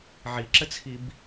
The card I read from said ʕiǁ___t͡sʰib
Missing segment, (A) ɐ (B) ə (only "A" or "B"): B